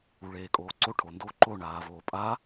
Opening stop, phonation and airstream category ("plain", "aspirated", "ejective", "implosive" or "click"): ejective